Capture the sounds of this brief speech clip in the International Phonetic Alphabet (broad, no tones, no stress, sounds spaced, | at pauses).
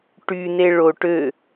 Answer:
ʈ y n e ɭ o ʈ ø